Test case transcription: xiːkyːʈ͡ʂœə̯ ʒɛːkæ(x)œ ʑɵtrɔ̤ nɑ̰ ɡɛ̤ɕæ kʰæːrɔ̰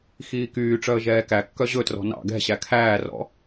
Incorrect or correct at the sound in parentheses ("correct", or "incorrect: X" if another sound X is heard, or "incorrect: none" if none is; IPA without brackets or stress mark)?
incorrect: kː